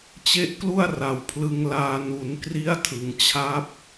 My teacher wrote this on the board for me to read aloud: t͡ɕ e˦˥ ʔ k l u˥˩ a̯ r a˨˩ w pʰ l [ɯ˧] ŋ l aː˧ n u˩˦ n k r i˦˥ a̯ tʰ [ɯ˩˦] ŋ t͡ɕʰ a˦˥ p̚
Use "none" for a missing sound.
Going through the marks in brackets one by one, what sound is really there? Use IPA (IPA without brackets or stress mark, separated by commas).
ɯ˧, ɯ˩˦